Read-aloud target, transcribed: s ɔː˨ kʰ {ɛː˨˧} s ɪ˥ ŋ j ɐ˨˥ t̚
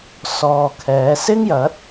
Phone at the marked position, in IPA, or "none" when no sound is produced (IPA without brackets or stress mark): ɛː˨˧